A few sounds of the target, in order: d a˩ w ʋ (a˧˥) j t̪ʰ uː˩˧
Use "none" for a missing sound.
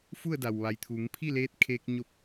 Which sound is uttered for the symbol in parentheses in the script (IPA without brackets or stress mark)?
a˩˧